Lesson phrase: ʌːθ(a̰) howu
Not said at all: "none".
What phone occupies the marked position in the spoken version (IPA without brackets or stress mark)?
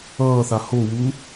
a